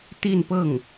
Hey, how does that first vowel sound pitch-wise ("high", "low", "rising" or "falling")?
falling